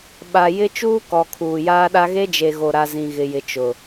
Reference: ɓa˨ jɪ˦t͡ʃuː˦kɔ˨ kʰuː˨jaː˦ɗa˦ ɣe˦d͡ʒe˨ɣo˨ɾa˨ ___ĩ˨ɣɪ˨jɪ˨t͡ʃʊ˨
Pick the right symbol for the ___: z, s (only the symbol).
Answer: z